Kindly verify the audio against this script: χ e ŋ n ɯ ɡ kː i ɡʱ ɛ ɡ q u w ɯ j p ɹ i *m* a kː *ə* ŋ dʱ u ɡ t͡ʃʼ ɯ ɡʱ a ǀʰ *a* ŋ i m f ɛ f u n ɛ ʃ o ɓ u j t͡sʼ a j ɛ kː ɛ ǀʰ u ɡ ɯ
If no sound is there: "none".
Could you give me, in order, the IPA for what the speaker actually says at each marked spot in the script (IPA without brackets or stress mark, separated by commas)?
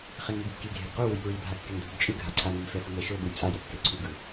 bʱ, ɛ, a